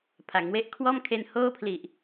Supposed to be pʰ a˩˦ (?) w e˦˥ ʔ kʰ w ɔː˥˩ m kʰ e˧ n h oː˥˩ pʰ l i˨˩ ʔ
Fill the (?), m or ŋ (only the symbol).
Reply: ŋ